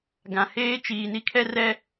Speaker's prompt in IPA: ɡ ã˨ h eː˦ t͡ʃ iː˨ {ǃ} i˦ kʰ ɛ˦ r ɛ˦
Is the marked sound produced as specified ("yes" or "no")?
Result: no